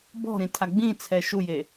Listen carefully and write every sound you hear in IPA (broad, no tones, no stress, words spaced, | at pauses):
bɔ̤ɾĩtʰa ɡ͡bĩt͡sʰɛ ʃuje